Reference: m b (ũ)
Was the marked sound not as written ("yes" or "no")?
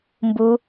yes